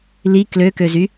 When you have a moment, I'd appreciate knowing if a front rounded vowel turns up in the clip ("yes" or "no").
yes